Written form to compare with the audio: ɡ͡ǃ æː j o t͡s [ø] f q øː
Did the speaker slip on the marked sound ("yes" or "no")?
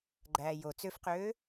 no